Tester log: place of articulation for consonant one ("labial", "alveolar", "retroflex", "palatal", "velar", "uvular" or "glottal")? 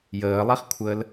palatal